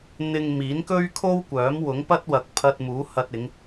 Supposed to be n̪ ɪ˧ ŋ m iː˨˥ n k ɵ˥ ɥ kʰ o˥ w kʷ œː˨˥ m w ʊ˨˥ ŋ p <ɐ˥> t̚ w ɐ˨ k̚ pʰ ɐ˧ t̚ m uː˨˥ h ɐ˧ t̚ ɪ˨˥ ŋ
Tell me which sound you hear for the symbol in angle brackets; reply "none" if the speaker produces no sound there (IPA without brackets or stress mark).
ɐ˥